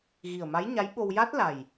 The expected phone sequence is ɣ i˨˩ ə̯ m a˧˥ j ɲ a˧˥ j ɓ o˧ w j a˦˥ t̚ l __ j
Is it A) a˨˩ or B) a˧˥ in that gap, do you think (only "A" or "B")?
A